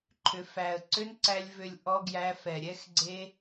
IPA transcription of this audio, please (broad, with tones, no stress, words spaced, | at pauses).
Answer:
ǃʰʏ˨fæ˨ə̯ǀʏ˦nǀæ˧lʲ vʏ˨lʲ ʔɔ˧ɡjæ˧ fɛ˨ɾʲɛ˦x ɡ͡ǀe˧